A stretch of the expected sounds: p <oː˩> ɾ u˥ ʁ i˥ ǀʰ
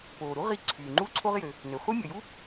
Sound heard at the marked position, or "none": oː˩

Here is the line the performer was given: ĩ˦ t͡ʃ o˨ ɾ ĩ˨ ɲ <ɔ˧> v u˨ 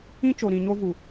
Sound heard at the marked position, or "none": o˧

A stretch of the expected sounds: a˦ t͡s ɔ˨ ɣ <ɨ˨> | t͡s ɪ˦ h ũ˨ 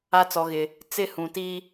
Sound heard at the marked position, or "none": ɪ˨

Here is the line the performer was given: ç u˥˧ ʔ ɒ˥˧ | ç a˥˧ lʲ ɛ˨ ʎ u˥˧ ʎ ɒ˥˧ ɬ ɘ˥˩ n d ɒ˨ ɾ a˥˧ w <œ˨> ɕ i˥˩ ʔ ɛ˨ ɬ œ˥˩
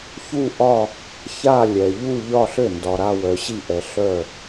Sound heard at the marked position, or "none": œ˨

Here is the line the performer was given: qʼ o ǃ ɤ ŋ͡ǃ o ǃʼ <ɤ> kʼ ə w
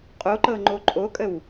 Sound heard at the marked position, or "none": o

